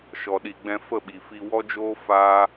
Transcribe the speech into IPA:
ʃ ɔ˨ ɗ i˨ ɡ͡b ɛ̃˧ f ə˦˨ ɓ i˨ f i˧ w ɔ˦ d͡ʒ oː˦ f aː˦

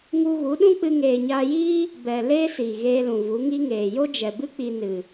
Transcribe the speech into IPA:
ŋ u˧ ɣ u˨˦ ɗ ũ˦ k͡p ɨ˧ ŋ eː˨ ɲ aː˧ j iː˦ | b ɛ˨ l eː˦ s iː˨ ɣ eː˧ l ũ˨ v u˨˦ ŋ i˦ ŋ eː˨ j o˦ d͡ʒ ɛ˨ b ɨ˦ k͡p i˧ n ɨ˨

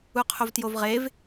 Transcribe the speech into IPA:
u qʰ o v t j o v ʁ e v

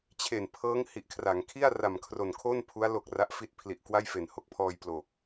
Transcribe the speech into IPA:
t͡ɕʰ e˨˩ n pʰ ɤː˦˥ ŋ h i˨˩ ʔ kʰ r a˩˦ ŋ kʰ i˥˩ a̯ r a˨˩ m kʰ r o˨˩ n kʰ o˥˩ n pʰ u˦˥ a̯ l o˨˩ k̚ r a˦˥ ʔ f i˦˥ t̚ pʰ l i˨˩ ʔ k w a˥˩ j f e˨˩ n h o˦˥ k̚ pʰ ɔː˧ j p l o˨˩ k̚

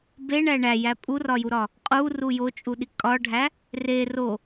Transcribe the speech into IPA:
b e ɳ æ ɳ æ j æ pʼ u r ɒ j u ɾ ɒ | qʼ u r u j o t͡ʃʼ u ɗ i kʼ ɒ ɖʱ æ | r e r o

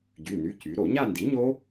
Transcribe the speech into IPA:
ɟ y˩˧˩ n y˩˧˩ c y˩˧ ɾ o˧˩˧ ɲ a˥˧ n d i˩˥ ɲ o˦˥

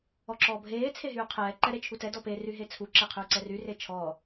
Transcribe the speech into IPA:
ɔ ǁ ɔː bʱ eː t͡sʰ e ɦ yː qʰ ɛː ǃ ɛ ɾ e t͡ʃʰ u t ɛ d ɔ p e r y ɦ e t͡sʰ u ǁ ɛ qʰ yː ǀ ɛ r y r e t͡ʃʰ ɔː

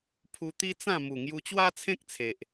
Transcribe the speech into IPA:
pʰ u˧ t̪ i˦ t͡s ã˥˧ m u˨˩ ŋ j u˧ t͡ɕ w a˦ t͡sʰ ẽ˦ k̚ t͡sʰ e˨ ʔ

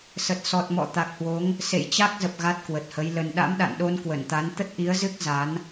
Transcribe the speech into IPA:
s ə˨˩ t̚ s ɔ˨˩ t̚ m ɔ̰˧˨ t̪ a˨˩ k̚ h w o˨˦ ŋ | s ḛ˧˨ j t͡ɕ a˦˥ k̚ z ə˨˩ p̚ ɣ a˦˥ t̚ k w ə˨˩ t̚ h ə˨˦ j l ə˧ n ɗ a̰˧˥ m ɗ a̰˧˨ n ɗ o˧ n k w ə˧˩ n t̪ a˨˦ n t̪ ə˦˥ t̚ ʔ i˨˦ ə̯ z ɨ˦˥ k̚ z a˨˦ n

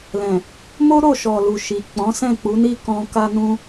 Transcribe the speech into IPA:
l ɛ̃˨ | m o˦ ɾ o˦˨ ʃ ɔ˨ l u˨ ʃ i˨ k͡p ɔ̃˨˦ s ɛ̃˦˨ k͡p u˨˦ n i˦ k ɔ̃˧ k a˦ n ũ˦

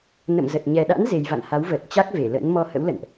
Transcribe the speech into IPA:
n ə̰˧˨ m z ə˨˩ t̚ ɲ ɛ˨˩ ɗ a̰˧˥ n z e˨˩ j v a̰˧˨ n h a˨˦ w v əː˨˩ t̚ t͡ɕ a˦˥ k̚ v e˧˩ l ə̰˧˥ n m ɔ˧ h ə̰˧˥ w l ə̰˧˨ n ʔ

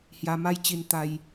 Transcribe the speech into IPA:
h j a˧ m a˦ j t͡ɕ i˧ n t̪ a˧ j

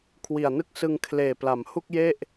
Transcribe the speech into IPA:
kʰ w i˨˩ a̯ n ɯ˥˩ k̚ s ɯ˧ ŋ kʰ l eː˨˩ p l a˩˦ m h u˥˩ k̚ j e˥˩ ʔ

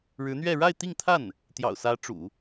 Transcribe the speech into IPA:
ɻ ɻ̩˧˥ n̪ ɥ ɛ˥˧ ɻ a˥˧ ɪ̯ t̪ i˥˧ ŋ t̪ʰ a˥˩ n | t̪ j ɑ̰˨˩ ʊ̯ s ä˧˥ ʈ͡ʂ ṵ˨˩˦

